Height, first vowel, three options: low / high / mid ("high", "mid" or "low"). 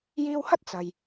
high